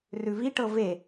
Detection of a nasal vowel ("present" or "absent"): absent